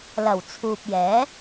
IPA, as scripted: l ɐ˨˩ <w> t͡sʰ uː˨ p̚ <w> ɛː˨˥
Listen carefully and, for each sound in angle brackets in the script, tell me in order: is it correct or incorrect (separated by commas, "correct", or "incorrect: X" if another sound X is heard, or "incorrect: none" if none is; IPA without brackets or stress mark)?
correct, incorrect: j